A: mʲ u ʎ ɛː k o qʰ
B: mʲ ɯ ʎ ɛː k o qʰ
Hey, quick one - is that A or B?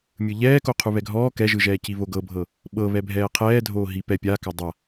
B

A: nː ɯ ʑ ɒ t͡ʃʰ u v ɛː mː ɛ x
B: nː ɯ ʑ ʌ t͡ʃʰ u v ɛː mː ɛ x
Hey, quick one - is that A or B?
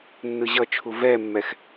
B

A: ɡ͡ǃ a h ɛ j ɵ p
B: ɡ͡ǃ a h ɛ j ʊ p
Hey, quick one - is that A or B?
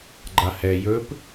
A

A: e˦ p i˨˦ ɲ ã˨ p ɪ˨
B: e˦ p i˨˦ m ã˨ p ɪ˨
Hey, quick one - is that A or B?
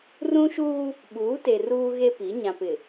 A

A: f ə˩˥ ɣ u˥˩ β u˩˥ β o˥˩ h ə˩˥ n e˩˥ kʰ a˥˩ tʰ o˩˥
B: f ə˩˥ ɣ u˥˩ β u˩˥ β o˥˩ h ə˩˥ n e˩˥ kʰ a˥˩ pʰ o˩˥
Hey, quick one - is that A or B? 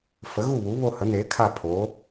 B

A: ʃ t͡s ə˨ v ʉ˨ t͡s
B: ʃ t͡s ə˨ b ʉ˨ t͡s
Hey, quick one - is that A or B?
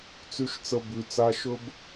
B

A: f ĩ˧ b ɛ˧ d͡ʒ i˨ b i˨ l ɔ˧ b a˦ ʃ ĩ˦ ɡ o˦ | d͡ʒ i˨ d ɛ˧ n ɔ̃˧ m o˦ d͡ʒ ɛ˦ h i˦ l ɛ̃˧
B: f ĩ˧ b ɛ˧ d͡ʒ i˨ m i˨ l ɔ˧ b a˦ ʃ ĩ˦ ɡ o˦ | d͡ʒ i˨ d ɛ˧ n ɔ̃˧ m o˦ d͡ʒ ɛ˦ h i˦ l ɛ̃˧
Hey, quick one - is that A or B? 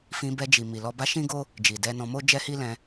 B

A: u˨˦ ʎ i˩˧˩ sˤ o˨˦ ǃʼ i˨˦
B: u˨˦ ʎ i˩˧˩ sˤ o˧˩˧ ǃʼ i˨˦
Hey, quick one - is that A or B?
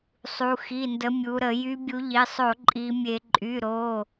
B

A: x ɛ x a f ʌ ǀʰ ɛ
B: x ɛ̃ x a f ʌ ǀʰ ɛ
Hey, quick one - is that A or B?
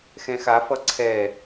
B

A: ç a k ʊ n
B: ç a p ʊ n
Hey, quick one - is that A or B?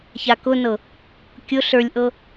A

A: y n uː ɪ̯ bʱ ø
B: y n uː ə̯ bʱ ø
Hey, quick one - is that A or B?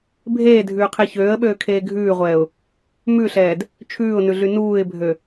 A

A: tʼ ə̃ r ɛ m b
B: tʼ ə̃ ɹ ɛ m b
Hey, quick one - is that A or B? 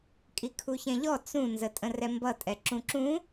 A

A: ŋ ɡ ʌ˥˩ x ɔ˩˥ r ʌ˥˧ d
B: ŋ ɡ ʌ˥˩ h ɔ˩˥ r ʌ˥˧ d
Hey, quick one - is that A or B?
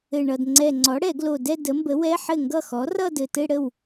A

